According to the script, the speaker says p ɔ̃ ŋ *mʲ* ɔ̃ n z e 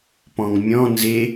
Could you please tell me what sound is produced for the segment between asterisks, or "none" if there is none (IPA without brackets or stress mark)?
mʲ